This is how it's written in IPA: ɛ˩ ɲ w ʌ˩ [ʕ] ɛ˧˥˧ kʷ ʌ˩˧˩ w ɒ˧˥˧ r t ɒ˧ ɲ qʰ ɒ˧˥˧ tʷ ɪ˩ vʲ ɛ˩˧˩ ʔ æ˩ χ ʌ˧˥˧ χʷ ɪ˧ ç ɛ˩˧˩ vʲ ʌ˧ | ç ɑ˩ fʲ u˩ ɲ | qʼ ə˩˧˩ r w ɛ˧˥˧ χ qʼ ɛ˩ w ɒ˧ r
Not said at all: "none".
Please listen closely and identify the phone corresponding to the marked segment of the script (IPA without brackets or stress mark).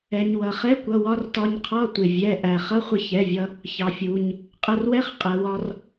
χ